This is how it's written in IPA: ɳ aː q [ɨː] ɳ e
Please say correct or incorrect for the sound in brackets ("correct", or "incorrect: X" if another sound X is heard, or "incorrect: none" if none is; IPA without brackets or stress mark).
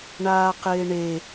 incorrect: ɪː